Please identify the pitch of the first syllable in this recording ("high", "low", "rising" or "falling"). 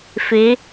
rising